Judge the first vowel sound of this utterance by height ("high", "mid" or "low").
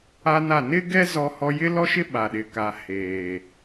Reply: low